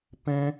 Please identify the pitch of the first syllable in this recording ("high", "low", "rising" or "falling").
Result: high